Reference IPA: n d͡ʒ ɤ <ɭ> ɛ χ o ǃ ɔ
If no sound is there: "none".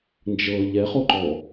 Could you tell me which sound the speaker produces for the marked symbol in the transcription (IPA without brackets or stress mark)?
ʎ